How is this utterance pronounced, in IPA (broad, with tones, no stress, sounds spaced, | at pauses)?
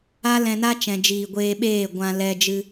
a˦ l ɛ̃˧ n a˦ t͡ʃ ɛ̃˨ d͡ʒ iː˨ ɡʷ eː˧ ɓ eː˦˨ ɡʷ ã˧ l ɛ˧ d͡ʒ ɨ˧